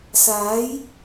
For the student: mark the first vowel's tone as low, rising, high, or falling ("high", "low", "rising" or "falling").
rising